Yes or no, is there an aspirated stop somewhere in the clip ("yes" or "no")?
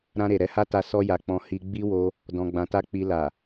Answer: no